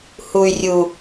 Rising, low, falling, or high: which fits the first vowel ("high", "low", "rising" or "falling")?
low